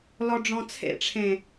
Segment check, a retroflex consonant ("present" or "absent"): present